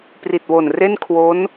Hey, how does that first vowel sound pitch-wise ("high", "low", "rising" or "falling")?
low